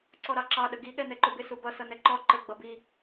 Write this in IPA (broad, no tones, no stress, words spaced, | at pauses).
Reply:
ǀɔɾɑǁɑ ɗəɡi ɠɛnɛǃʊbɪ subʌ sʌnɛǃɔ ǃə ɡ͡bʌbi